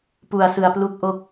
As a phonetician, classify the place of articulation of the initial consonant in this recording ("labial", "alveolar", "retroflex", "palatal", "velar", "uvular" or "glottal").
labial